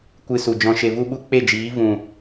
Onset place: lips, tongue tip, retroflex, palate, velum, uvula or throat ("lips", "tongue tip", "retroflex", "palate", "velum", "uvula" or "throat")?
velum